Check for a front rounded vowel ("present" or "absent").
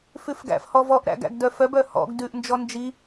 present